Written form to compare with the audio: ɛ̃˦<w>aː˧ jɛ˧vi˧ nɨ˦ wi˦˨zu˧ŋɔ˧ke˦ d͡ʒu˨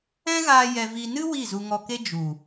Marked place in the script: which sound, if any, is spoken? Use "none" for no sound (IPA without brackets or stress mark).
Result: ɣ